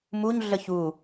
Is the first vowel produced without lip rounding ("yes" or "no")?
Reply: no